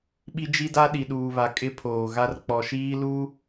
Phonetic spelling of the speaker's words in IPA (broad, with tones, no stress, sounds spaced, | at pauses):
ɓ i˦ d͡ʒ i˦ d a˦ ɗ i˨ ɗ uː˨ β a˨ kʼ ɪ˦ pʰ oː˨ ɣ a˦ r k͡p ɔ˨ ʃ iː˦ l u˦